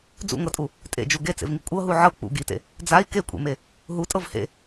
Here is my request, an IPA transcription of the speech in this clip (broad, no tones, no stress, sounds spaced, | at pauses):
d͡z ṵ ŋ ɤ tʼ u | tʼ ḛ d͡ʒ u ɡ e t͡s ḛ v ŋ i kʷʼ ɤ ɦ u ʕ ɤ k͡p ṵ ɡ i t ḛ | d͡z a i̯ k e kʷʼ ḛ m e | ɦ u tʼ ɤ v h ḛ